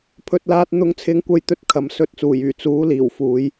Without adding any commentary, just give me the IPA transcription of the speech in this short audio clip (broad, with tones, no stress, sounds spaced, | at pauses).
pʰ ɵ˧ t̚ l aː˧ t̚ n̪ ʊ˧ ŋ t͡sʰ ɪ˥ ŋ kʷ ɐ˥ j t̪ ɵ˥ t̚ kʰ ɐ˨˧ m s ɵ˥ t̚ t͡s uː˨˩ j yː˨˩ t͡s uː˨˥ l iː˨˩ w f uː˨˥ j